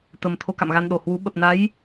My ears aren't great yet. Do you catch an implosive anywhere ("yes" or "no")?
yes